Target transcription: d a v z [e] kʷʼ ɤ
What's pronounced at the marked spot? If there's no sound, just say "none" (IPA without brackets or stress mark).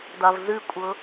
ɨ